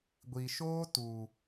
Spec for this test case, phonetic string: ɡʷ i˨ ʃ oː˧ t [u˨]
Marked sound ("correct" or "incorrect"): correct